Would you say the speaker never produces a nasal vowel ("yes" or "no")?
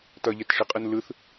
yes